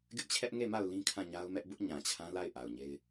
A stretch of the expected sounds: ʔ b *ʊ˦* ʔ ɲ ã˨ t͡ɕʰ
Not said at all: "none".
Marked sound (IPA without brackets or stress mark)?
ʊ˦